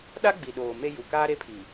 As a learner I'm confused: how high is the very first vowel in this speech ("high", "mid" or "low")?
low